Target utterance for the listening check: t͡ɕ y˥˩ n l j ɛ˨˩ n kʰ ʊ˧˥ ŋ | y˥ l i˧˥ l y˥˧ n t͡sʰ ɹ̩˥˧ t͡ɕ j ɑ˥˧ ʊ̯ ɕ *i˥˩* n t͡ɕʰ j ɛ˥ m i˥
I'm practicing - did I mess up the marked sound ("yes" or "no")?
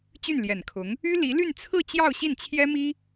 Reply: no